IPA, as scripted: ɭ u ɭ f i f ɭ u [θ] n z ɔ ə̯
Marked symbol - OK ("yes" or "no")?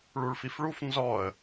no